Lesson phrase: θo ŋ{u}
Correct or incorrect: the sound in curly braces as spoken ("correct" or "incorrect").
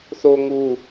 correct